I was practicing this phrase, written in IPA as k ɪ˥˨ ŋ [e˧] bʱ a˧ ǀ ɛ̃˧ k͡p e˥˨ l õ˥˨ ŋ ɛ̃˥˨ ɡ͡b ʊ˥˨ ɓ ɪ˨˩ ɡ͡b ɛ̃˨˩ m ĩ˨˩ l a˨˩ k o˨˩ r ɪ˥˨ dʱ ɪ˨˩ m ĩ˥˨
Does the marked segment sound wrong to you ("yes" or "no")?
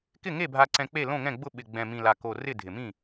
yes